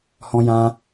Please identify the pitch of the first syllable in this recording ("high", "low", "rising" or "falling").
high